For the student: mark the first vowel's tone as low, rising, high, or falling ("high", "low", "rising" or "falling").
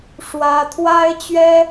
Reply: high